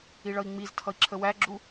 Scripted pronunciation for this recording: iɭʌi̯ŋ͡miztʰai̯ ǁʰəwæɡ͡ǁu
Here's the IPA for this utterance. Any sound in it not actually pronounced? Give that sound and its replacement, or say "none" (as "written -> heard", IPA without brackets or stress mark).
a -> ʌ